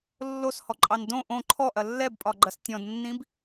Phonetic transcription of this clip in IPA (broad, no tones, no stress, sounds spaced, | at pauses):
lː o s h ɔ ǃʼ ɑ n d õ ʔ õ ǃʰ ɔ ʔ ɐ lː ɛ b pʼ ɒ ɡ͡ǃ ɐ s tʲ ɔ̃ d nː ĩ b